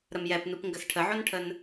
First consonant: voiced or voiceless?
voiced